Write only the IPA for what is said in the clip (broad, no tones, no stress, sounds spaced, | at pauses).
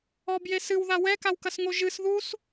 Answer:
ɔ b j e s ɨ w ð a w ɛ k a w k ɐ s ŋ o ʒ ɨ s ð u s